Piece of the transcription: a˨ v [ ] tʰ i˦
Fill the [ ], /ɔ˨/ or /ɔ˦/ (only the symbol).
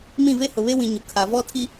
ɔ˦